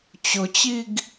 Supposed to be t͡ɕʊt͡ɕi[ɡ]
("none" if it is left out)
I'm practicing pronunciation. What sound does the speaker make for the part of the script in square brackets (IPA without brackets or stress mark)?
ɡ